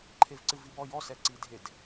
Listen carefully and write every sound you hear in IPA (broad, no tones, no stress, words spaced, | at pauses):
ǃʰevǀɨvibɔ jɔsɛ ǀidʱed